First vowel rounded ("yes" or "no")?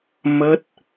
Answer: no